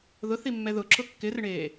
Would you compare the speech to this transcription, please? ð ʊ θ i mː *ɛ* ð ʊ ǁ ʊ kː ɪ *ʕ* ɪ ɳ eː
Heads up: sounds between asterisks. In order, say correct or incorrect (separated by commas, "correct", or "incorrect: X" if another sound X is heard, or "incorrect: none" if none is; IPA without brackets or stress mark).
correct, incorrect: r